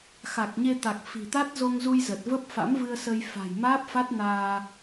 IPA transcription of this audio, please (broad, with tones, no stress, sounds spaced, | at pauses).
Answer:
x a˨˩ k̚ ɲ e˧ t̪ a˨˩ k̚ f i̤˨˩ t̪ a˦˥ t̚ z o˧ ŋ z u˧ j z ə˨˩ t̚ v ə˦˥ p̚ f a̰˧˥ m v ɨ˧ ə̯ s ə˧ j f a̤˨˩ j m aː˦˥ p̚ f a˦˥ t̚ n aː˧